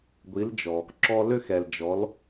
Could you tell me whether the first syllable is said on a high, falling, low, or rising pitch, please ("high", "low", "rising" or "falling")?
rising